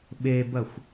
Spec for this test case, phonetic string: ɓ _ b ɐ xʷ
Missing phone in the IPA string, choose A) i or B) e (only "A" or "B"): B